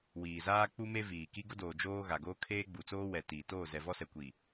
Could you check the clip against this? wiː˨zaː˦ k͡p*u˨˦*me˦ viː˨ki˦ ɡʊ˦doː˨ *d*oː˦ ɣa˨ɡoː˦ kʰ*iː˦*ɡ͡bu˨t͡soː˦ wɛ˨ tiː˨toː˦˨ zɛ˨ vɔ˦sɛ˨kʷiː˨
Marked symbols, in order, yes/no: no, no, no

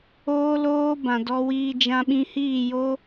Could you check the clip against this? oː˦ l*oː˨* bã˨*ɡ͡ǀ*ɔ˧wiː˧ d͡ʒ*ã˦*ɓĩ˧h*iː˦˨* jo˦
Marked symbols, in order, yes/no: no, no, no, yes

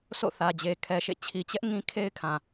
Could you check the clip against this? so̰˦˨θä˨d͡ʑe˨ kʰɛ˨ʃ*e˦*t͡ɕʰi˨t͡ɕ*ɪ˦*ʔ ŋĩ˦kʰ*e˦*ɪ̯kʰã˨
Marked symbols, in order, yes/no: no, no, yes

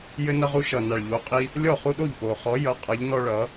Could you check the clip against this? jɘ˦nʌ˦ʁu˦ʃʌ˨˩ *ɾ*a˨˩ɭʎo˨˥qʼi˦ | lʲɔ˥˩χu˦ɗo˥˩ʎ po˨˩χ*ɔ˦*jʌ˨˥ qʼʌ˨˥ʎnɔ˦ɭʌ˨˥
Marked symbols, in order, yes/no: no, no

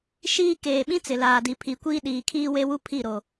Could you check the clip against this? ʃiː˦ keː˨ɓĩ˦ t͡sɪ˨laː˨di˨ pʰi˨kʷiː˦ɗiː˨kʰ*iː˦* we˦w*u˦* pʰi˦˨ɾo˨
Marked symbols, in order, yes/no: yes, yes

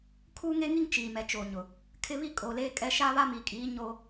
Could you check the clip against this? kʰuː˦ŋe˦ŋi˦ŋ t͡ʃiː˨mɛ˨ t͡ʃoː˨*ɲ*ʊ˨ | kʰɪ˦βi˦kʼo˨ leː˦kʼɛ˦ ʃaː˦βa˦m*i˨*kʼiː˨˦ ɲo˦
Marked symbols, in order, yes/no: yes, yes

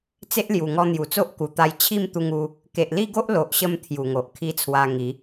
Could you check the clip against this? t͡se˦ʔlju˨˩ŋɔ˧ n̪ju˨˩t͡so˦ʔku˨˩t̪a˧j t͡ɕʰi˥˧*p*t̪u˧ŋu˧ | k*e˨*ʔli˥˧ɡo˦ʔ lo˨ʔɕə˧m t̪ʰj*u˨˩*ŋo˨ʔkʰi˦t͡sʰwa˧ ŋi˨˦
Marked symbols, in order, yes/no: no, yes, yes

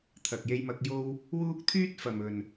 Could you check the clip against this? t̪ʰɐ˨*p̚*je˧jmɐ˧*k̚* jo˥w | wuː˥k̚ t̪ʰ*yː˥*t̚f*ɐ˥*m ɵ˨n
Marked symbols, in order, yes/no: no, yes, yes, no

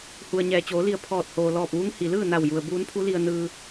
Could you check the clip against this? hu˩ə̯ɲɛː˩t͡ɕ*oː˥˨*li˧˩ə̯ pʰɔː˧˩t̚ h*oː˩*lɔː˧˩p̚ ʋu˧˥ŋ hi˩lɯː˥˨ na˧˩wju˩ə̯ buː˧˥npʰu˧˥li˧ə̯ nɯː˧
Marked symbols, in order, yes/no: no, yes

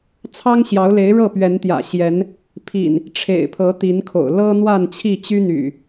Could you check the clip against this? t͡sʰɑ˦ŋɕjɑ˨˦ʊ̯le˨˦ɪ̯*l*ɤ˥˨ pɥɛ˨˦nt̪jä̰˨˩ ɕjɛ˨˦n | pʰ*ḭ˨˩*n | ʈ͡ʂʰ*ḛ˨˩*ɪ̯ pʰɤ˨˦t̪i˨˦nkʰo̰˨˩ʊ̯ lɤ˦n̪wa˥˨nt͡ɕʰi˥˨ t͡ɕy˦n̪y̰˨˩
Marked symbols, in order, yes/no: no, yes, yes

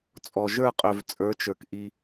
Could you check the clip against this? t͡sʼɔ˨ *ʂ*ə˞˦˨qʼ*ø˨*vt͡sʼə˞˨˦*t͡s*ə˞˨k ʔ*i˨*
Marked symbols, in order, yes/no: no, yes, no, no

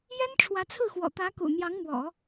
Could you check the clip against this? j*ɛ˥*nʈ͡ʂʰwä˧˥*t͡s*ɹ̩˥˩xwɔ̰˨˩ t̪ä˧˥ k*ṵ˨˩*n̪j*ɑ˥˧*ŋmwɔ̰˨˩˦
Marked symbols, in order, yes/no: yes, no, yes, no

